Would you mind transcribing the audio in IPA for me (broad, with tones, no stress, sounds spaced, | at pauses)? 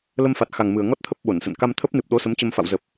l ə˧ m f a˨˩ t̚ x a˨˩ ŋ m ɨ˨˩ ə̯ ŋ ɔ˦˥ t̚ t̪ʰ ə˦˥ p̚ ɓ o˧˩ n s ə̰˧˨ n k a˧ m t̪ʰ ə˦˥ p̚ n ɨ˨˩ p̚ ɗ o˨˦ s ə˨˦ m t͡ɕ ə˧ m f a̰˧˨ w z ə˨˩ p̚